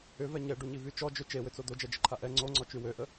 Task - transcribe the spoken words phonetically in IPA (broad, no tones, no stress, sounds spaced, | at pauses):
ʏ v ɛ ɲ ɛ ɖ u ɲ i v y t͡ʃ ɔ d͡ʒ ø t͡ʃ e w ʏ t͡s o d̪ o d͡ʒ ɛ d͡ʒ ə ǃʰ a ʔ ɛ ŋ͡ǀ o ŋ͡ǀ ɔ t͡ʃ y w ø ʔ ə